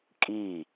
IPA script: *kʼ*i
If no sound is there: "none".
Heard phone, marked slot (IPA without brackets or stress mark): kʼ